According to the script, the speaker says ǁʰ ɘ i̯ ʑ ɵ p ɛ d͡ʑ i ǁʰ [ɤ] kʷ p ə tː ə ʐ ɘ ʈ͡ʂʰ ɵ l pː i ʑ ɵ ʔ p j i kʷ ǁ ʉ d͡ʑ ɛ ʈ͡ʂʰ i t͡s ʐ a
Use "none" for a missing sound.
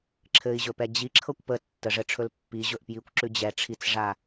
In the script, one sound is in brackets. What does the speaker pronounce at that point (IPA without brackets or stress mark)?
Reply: ɤ